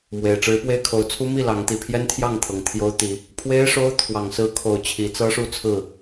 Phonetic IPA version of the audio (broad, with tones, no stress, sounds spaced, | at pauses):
m w e˨˩ ɪ̯ ʈ͡ʂ ɻ̩˨˦ p w e˦ ɪ̯ kʰ o˨˦ ʊ̯ t͡sʰ u˦ m i˥˨ l ɑ˨˦ ŋ t̪ i˨˩ pʰ j ɛ˦ n t̪ʰ j ɑ˥˨ ŋ t̪ʰ ɤ˨˩ ŋ t̪ʰ j o˦ ʊ̯ t̪ i˨˦ | pʰ w e˦ ɪ̯ ʂ o˦ ʊ̯ t̪ʰ w ɑ˨˩ ŋ s ɹ̩˨˦ kʰ o˨˩ ʊ̯ t͡ɕʰ i˨˦ t͡s ɤ˦ ʂ u˥˨ t͡sʰ ɹ̩˥˨